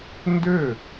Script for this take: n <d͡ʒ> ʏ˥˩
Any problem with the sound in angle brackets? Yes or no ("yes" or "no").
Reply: yes